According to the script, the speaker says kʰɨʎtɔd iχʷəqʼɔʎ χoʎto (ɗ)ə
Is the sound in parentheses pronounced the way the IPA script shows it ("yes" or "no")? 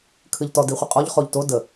no